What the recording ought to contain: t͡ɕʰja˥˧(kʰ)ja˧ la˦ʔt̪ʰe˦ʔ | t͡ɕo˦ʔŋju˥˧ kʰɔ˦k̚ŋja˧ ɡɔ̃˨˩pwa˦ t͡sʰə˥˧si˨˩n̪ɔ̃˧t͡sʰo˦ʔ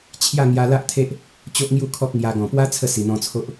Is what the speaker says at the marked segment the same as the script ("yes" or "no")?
no